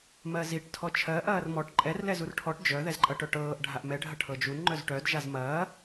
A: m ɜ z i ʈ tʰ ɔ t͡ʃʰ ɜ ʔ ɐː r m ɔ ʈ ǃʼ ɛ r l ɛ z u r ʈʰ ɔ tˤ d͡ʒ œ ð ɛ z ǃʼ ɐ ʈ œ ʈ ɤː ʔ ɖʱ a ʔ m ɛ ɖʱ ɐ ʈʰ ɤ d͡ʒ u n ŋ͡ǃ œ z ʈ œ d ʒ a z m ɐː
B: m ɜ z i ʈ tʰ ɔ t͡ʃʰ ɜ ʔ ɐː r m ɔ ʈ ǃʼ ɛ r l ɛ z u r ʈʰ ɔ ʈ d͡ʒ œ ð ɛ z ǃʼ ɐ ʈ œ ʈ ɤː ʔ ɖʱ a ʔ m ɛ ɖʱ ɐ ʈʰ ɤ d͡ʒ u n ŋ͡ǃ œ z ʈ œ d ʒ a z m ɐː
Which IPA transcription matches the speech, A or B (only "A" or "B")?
B